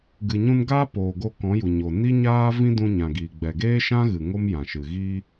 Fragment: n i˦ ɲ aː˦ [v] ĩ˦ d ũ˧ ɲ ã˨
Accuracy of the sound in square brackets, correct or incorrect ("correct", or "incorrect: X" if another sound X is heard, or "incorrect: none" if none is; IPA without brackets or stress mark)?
correct